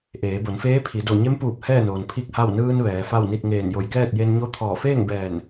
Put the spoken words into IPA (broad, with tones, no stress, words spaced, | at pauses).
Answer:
ʔeː˩˧bo˩˧nfeː˧˥pʰi˩˧ do˧˩ ɲe˧˥mpuː˧˩p̚ hɛː˥˨noː˩n pʰi˥˨k̚ha˥˨w nɯː˧n ʋɛː˩˧fa˥˨wni˥˨t̚ ŋeː˧˩njo˧˩jkɛː˥˨t̚ je˧nɲo˧˥t̪ʰɔː˧˩ feː˥˨ŋbɛː˧˩n